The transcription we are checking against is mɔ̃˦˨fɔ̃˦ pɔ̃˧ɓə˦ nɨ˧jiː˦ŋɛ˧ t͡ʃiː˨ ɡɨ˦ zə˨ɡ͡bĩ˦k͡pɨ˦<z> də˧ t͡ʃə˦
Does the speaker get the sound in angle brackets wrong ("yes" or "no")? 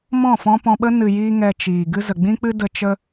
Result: yes